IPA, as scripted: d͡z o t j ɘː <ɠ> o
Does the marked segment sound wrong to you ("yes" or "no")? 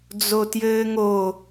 yes